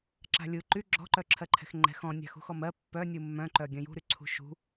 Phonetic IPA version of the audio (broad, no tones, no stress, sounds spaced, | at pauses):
ǁ a̤ lʲ ɯ ǃ y ɡ͡ǁ ɔ̤ ǃ œ ǁʰ ɜ ǃʰ ɛ̤ x ŋ͡ǃ ɛ̤ x ɔ̃ nʲ a̤ x ṳ x ɔ m ɜ pː œ nʲ ɯ mː œ̃ ǃ œ ɡʲ œ̃ j ṳ ɾ y ǀʰ ṳ ʃ ṳ